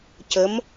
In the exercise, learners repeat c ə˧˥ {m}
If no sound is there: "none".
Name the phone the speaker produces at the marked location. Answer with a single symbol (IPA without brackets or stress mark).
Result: m